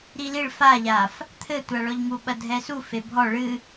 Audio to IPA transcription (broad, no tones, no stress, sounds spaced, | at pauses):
ɾ i l i ɭ f a ʎ a f | t̪ʰ ɘ tʷ a ɭ ɔ ʎ ŋ u ɓ ɐ dʱ ɛ s u f e bʱ ɔ ɭ ɨ